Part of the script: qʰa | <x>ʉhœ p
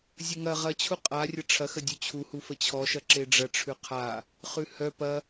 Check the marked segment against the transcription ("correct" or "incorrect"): incorrect